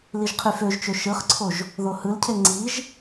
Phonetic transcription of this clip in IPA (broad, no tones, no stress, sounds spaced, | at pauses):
l i ʒ qʰ y f ø ʒ t͡ʃ ø ʃ ɯ χ ǀʰ o ʒ | ð o h ɯ l cʰ e ŋ͡ǀ i ʒ